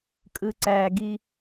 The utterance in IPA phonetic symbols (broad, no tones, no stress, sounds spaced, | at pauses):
kʼ ɯ ǀ æ ɡ i